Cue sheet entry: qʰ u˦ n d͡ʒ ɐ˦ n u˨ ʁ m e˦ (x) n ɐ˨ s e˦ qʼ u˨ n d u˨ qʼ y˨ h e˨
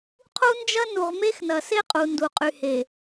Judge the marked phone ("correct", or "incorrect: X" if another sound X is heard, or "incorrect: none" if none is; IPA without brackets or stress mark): correct